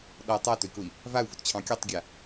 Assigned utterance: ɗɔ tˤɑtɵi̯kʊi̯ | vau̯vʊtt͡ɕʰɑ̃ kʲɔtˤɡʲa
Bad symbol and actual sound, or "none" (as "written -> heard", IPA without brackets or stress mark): ɑ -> a